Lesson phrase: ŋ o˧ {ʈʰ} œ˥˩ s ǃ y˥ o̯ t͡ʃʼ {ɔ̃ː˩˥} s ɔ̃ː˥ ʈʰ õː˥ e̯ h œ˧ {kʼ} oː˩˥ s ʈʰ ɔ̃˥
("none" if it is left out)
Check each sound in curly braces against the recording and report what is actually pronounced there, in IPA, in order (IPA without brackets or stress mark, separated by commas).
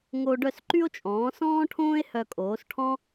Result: ɖ, ɔ̃ː˩˥, kʼ